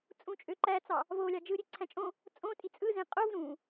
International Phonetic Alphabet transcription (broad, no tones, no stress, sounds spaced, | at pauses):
t͡sʼ ũ t͡ʃʼ ø ǃ æ t͡s ɑ | v o lʲ ɑ d͡ʒ ɯ ɾʲ e ǀʰ æ̃ t͡ʃʼ õ | t͡sʼ õ tʼ i t͡sʼ ɯ z ẽ qʼ o v ɾ ũ